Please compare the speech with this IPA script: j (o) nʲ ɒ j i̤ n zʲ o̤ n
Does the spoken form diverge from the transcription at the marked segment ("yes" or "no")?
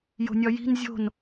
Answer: yes